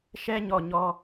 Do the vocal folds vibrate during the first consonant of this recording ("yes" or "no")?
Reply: no